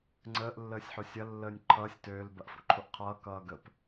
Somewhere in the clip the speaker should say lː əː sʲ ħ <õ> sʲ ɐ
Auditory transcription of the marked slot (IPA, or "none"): o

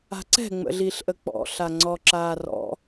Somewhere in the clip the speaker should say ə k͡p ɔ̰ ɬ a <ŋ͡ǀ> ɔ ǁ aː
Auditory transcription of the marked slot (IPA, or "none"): ŋ͡ǀ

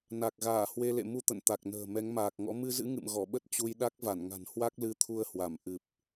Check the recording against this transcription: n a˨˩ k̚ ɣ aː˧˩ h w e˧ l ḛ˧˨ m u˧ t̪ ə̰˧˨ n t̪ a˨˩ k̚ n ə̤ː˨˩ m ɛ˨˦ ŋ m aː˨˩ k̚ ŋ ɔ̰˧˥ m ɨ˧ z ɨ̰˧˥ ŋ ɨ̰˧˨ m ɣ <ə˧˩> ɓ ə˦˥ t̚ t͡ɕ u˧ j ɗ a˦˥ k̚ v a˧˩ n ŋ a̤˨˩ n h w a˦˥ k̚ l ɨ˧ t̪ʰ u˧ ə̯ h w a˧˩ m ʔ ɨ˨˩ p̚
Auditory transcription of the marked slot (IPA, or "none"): ɔ˧˩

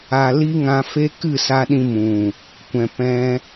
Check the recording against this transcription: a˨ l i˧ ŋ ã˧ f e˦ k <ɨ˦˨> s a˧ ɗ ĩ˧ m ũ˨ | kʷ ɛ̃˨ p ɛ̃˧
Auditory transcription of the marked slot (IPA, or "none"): ɨ˦˨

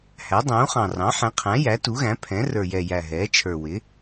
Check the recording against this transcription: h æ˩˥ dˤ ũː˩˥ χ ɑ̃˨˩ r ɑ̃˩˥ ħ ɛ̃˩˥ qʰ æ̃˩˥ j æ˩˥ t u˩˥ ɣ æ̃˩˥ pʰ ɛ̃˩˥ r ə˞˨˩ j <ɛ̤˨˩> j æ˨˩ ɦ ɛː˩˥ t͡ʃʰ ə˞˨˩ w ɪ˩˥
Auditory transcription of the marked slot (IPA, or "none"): ɛ˨˩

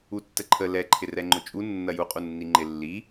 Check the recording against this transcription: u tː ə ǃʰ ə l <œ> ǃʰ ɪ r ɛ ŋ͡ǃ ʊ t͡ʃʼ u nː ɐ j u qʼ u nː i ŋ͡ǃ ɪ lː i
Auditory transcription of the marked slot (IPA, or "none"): ɛ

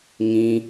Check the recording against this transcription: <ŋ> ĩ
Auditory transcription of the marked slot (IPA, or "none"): ŋ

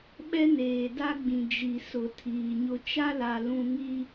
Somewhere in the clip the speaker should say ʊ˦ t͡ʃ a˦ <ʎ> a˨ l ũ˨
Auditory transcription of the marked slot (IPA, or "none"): l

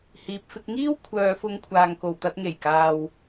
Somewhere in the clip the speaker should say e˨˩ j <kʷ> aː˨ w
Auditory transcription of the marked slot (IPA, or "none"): k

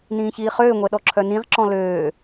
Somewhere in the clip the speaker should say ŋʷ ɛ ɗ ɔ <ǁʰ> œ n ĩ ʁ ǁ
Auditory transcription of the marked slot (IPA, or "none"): ǁʰ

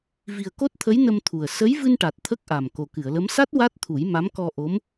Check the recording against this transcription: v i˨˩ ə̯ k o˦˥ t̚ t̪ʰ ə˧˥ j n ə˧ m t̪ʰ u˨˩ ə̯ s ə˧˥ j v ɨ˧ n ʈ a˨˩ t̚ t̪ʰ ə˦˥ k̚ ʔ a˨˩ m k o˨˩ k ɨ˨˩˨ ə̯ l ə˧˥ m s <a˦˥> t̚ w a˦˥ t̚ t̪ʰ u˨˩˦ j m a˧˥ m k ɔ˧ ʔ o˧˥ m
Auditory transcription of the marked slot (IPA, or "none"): a˦˥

